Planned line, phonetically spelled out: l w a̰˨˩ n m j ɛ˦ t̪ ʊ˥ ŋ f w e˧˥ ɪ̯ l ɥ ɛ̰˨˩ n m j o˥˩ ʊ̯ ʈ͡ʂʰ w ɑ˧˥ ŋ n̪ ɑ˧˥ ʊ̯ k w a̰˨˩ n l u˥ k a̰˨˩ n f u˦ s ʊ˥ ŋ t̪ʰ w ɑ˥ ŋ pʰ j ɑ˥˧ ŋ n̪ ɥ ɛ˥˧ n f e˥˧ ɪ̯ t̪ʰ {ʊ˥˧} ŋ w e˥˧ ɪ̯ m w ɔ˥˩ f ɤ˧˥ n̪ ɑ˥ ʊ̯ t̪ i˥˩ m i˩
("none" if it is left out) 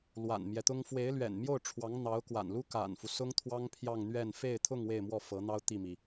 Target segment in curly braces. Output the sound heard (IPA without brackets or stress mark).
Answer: ʊ˥˧